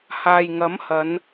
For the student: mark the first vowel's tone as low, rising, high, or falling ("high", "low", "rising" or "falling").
low